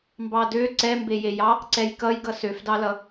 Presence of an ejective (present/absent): absent